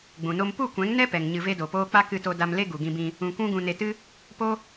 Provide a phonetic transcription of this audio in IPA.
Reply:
ɡ͡bũ˨no˦m pu˦˨kʷɛ̃˨˦ŋnɛ˦ pɛ˨ŋ ɲɨ˧ve˦do˨poː˦ k͡pa˦kɨ˧to˧ da˧m le˦ ɡu˨ɡĩ˧bĩ˧ | ũ˧kʷũ˦ɡũ˧ ne˧tɨ˦ | po˦

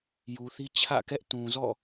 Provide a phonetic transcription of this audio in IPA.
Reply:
ju˨θi˦ t͡ɕʰä̰˦˨kɛ˦ʔ tũ˨zɔ̰˦˨

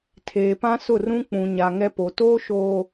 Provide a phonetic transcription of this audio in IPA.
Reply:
tʰeː˨pã˦sʊ˦˨r ũ˦ k͡pũ˨ɲa˨ ŋɛ˦po˨ toː˦ʃoː˨

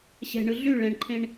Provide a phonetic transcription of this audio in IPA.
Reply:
ɕɛ̤ɳɯ ɮy ɭɛ̃ɳǃʰẽɳ

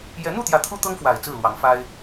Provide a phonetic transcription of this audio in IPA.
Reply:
jɛ˨˦n̪u˥˨t̪jä˨˦ t̪ʰu˦t̪ɤ˦ŋfwa˨˩ɪ̯ t͡sɹ̩˥˨lwɑ˨˦ŋfa˦ɪ̯

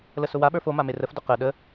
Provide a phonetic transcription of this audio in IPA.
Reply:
ləsʊwa ɓə˞fo mamerəfdʊ qə ɗə

